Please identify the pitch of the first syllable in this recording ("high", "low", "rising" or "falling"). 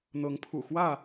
rising